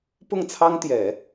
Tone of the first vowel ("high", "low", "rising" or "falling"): falling